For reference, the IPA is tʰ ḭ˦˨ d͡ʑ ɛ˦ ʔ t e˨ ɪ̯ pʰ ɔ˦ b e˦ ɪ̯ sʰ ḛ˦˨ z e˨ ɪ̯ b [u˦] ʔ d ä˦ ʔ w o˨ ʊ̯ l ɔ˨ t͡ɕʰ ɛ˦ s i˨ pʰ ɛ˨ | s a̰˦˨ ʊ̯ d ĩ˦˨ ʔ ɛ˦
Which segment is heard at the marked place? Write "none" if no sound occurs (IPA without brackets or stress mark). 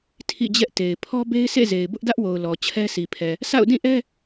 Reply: ʊ˦